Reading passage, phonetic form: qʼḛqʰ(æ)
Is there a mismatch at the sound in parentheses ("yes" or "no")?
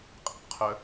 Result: yes